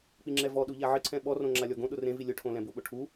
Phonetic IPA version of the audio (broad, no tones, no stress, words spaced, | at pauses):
k͡piŋ͡ǁɛvɔɗu ʎaʕɪǀʰɛ̃ ɓɔrõ ŋ͡ǁalʲɔɡõɗʊ rẽvi lʲʊʈʰõ lɛ̃bʊɓʊ ʈʰu